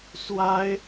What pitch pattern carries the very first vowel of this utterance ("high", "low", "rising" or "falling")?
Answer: high